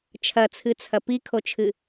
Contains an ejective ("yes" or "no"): no